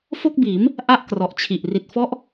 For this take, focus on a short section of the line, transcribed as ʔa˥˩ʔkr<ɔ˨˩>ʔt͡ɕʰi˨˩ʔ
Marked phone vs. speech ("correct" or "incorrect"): correct